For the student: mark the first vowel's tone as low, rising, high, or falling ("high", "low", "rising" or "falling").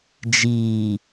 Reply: low